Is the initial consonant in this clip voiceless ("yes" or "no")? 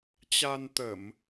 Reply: yes